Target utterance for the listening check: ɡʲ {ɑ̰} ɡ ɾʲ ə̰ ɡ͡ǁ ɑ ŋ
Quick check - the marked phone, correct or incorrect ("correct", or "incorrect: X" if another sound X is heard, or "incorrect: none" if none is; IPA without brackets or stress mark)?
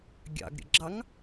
correct